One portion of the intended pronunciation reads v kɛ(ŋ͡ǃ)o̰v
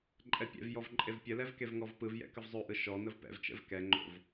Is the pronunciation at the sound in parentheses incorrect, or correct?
correct